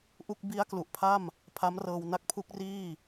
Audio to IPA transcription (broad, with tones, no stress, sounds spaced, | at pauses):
ʔ u˥˩ k̚ b i˦˥ a̯ k l u˨˩ ʔ pʰ a˥˩ m | pʰ a˦˥ m r ɤː˧ w n a˦˥ k̚ pʰ u˦˥ k̚ r iː˥˩